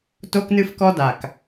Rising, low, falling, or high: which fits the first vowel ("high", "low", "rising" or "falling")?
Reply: high